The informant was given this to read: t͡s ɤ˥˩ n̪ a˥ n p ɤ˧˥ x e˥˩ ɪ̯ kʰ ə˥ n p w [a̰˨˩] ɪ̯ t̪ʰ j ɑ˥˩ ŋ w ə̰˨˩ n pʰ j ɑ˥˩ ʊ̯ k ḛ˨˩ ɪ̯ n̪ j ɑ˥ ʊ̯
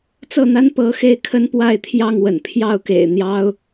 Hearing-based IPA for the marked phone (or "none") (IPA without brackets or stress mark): a˥˧